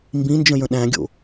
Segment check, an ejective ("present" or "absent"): absent